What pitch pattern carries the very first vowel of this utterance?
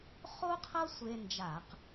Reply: high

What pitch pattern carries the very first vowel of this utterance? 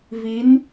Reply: rising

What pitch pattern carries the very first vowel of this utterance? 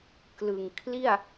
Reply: low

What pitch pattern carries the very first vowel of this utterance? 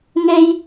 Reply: high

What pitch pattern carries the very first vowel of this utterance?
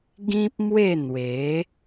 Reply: high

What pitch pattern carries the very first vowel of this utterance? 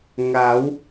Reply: rising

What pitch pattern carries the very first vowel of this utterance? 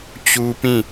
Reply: high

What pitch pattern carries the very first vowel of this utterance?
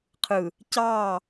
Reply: low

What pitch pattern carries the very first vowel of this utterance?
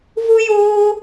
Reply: high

